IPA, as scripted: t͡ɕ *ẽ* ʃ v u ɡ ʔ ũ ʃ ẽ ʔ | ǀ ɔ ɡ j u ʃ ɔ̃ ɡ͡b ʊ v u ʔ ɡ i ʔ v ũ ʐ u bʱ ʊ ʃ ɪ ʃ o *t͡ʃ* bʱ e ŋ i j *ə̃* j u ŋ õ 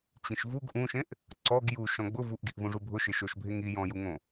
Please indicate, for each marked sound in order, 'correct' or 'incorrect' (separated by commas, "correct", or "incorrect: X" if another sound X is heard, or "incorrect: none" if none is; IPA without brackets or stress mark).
incorrect: ĩ, incorrect: ʃ, incorrect: ɔ̃